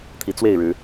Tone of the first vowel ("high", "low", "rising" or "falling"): rising